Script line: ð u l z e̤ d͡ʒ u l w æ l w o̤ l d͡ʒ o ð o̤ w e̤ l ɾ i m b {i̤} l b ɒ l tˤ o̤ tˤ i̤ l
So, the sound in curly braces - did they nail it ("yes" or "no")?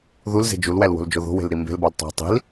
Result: no